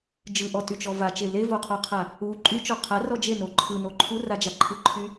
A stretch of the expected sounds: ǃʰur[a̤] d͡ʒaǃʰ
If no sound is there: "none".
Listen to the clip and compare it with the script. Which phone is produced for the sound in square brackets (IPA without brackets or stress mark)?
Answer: a